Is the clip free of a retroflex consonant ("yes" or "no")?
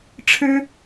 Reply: no